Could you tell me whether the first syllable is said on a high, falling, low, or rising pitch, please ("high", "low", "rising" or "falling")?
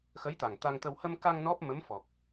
rising